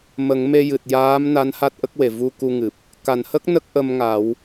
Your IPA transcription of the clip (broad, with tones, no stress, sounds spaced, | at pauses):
m ə˨˩˦ ŋ m e˧ j ɨ˨˩ t̚ j aː˧˥ m n a˧˥ n h a˦˥ t̚ ʔ ə˦˥ k̚ w e˨˩˨ v u˧ k u˧ ŋ ɨ˨˩ p̚ | k a˨˩˨ n h ə˦˥ k̚ n ə˦˥ k̚ ʔ ə˧ m ŋ a˨˩˦ w